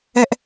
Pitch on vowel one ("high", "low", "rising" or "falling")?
low